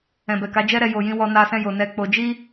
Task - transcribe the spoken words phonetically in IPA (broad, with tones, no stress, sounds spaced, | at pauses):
ɛ̃˨ b ɛ˨ k a˨˦ d͡ʒ ɛ˦ ɾ ɛ˧ j o˨ j ĩ˧ w ɔ˧ n a˧ s ɛ̃˧ j o˨ n ɛ˧ k͡p o˧ d͡ʒ i˦